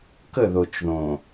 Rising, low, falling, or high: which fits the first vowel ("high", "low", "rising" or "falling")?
falling